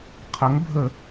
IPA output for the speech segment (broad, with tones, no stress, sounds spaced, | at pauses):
qʰ ə˩˥ ŋ bʱ ə˧˩˧